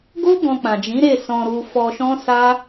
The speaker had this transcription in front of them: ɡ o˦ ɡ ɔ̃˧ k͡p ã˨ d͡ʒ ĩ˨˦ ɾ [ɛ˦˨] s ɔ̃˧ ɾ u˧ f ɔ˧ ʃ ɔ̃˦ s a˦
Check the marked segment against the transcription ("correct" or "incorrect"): incorrect